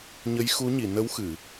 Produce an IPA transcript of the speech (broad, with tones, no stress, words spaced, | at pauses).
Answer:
ɲə˧˥jxu˧˥ɲi˨˩˨ nə˧˥w xɨ˨˩˨